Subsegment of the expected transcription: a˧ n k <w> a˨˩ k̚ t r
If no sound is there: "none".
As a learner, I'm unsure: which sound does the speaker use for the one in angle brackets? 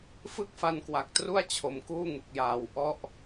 w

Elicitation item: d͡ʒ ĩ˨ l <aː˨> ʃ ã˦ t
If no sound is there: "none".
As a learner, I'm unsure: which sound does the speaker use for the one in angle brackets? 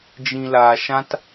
aː˨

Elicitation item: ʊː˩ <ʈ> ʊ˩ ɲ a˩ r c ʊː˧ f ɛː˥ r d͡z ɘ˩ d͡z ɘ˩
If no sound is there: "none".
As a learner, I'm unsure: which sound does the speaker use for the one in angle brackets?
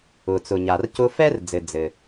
t͡s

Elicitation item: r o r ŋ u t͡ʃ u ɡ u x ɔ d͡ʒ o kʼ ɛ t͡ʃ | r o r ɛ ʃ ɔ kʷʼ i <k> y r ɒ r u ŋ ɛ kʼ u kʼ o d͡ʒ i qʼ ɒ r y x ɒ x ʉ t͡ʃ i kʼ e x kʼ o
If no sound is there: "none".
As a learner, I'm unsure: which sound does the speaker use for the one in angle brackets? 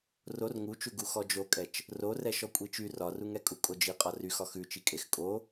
t͡ʃ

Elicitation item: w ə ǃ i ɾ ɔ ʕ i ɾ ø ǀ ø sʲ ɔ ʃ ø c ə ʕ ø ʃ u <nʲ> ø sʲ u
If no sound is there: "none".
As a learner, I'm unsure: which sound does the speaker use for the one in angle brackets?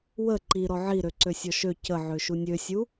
nʲ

